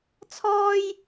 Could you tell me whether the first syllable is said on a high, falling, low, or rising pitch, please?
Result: high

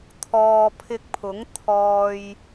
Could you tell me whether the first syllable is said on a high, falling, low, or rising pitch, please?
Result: low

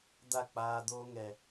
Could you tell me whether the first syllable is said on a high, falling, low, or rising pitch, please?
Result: falling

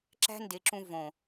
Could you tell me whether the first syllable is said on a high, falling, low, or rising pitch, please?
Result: high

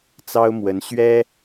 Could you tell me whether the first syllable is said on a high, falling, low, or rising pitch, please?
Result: high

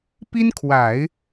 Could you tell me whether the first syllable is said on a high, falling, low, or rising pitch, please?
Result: high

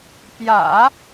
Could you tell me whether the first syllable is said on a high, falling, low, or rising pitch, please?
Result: low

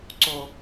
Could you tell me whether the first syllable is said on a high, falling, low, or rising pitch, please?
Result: low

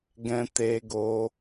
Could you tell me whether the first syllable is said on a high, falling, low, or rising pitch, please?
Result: high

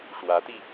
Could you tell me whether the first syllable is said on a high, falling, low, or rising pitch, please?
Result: rising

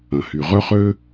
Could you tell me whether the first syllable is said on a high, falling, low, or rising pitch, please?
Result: low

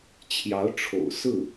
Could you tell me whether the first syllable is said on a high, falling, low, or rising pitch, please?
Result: rising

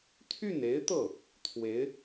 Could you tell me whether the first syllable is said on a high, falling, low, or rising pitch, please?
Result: falling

